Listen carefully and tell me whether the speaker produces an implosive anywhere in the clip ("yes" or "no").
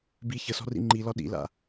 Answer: yes